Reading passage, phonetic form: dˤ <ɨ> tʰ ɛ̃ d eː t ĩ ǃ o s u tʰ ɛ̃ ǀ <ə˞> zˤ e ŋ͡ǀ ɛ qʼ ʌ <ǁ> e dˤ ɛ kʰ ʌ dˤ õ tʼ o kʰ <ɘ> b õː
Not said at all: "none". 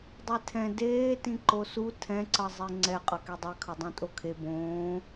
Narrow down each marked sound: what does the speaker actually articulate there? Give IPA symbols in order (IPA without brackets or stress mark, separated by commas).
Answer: e, ʌ, k, e